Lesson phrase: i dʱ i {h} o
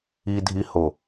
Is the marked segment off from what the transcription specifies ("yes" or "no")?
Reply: no